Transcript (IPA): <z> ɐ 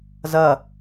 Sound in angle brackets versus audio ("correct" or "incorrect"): correct